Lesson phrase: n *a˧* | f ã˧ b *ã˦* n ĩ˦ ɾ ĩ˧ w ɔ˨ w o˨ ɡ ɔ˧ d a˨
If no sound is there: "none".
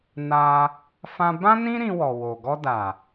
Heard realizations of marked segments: a˧, ã˦

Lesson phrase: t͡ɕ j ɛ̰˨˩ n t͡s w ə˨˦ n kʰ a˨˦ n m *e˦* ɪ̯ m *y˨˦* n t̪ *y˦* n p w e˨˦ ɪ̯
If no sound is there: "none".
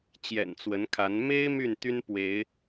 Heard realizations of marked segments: e˦, y˥˨, y˦

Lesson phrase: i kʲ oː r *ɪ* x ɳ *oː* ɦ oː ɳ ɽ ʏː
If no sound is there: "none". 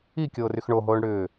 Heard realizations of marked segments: y, o

